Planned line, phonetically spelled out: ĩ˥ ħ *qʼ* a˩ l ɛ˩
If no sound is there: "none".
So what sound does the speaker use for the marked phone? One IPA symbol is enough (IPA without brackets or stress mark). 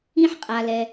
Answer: qʼ